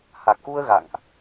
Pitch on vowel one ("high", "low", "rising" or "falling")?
low